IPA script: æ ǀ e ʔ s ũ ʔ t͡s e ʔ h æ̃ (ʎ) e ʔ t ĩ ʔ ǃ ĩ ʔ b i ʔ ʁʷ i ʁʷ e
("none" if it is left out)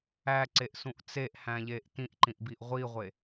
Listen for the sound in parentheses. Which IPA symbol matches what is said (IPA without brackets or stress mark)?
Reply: ʎ